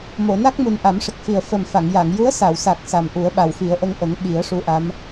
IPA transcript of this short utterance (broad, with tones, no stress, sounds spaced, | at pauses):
m o˨˩˨ n a˦˥ k̚ m u˨˩ n ʔ a˨˩˦ m ʂ ə˨˩ k̚ f i˨˩ ə̯ f ə˨˩ m f a˨˩˨ ŋ j a˨˩˨ ŋ j u˧˥ ə̯ s a˨˩˨ w s a˨˩ k̚ s a˨˩ m ʔ u˨˩˦ ə̯ ɓ a˨˩ w f i˨˩˦ ə̯ ʔ ə˧ ŋ ʔ ə˨˩˦ ŋ ɓ i˨˩˦ ə̯ ʂ u˧˥ ʔ a˧˥ m